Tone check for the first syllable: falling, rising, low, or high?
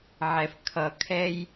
low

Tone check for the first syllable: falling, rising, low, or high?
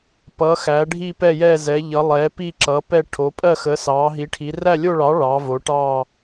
rising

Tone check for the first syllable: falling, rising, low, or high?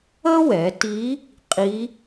high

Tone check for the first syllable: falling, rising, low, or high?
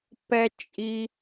high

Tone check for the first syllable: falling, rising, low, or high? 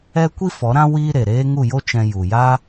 high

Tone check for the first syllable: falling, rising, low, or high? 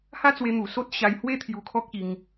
high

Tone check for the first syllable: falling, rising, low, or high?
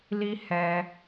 high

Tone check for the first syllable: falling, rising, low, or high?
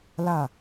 falling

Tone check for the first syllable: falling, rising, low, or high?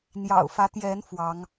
low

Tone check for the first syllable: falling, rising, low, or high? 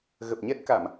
low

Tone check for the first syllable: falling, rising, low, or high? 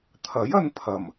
rising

